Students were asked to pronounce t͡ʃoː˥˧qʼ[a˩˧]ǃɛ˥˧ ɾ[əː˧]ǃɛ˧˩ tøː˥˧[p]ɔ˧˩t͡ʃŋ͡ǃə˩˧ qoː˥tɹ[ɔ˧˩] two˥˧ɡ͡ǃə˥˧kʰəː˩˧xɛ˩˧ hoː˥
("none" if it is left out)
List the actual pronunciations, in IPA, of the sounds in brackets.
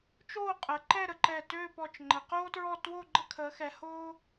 ə˩˧, ə˧, p, ɔ˥˧

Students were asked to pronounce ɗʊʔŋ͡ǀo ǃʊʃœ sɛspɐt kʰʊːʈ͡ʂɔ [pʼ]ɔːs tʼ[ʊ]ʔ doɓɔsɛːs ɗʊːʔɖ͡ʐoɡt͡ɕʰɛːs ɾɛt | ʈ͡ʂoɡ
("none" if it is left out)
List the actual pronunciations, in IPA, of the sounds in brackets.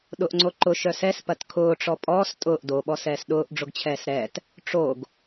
pʼ, ʊː

